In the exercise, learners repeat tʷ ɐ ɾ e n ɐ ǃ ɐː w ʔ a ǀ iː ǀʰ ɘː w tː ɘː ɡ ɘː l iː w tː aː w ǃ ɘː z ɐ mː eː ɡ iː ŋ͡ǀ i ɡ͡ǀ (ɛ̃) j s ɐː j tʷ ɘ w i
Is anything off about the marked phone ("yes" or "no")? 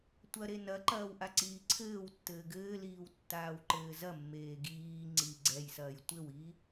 yes